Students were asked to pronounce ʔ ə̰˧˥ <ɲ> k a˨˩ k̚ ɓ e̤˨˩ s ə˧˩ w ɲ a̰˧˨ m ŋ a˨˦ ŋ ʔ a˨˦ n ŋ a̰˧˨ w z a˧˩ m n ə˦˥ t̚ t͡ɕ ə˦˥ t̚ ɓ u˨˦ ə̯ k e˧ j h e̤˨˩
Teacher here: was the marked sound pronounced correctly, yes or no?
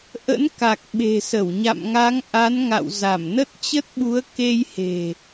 no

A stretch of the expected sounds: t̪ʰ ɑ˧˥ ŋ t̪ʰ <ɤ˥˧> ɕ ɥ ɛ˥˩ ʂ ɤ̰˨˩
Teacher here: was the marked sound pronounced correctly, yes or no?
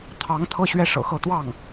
yes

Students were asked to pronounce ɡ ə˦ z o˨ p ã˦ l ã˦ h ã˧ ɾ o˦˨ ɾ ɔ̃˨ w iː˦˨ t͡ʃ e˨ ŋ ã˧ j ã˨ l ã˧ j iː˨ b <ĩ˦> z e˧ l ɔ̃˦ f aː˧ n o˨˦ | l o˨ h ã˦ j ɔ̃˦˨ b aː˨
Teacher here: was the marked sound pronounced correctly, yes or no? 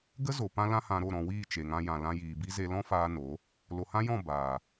no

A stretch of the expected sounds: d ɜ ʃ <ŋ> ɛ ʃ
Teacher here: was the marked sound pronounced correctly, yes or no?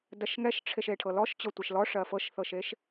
yes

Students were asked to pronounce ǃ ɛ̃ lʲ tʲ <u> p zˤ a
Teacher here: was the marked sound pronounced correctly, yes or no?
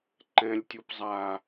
yes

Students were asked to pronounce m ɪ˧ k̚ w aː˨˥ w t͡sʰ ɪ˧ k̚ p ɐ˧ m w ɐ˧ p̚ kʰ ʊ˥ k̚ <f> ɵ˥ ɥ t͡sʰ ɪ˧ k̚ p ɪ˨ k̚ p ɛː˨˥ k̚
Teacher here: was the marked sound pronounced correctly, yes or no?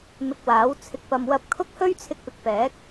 no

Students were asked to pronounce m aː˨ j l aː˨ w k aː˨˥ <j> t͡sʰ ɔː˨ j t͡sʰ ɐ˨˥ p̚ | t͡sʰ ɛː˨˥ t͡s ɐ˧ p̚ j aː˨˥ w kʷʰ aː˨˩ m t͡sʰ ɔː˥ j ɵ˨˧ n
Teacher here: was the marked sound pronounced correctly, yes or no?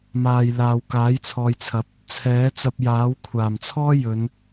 yes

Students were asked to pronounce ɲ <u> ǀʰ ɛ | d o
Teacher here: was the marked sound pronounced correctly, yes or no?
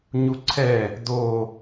yes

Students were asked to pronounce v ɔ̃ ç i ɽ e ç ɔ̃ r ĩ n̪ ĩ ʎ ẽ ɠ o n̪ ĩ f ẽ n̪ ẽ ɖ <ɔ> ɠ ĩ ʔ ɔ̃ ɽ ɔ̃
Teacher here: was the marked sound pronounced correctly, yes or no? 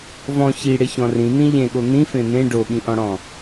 no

